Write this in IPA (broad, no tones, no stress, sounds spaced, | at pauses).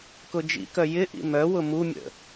k ʊ d͡ʒ ḭ k œ j ɪ ʔ ḭ m œ w ʊ m u mʲ ə̰